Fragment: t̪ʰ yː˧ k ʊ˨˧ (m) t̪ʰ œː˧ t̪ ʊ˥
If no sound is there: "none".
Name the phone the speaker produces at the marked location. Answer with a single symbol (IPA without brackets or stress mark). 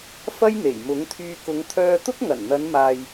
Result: ŋ